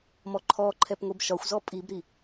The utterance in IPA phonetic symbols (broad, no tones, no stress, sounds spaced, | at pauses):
m ɔ ǃʰ ɔ ǃʰ ɛ p ŋʷ i b ʃ ɒ xʷ z ɔ pʼ i b ɾ i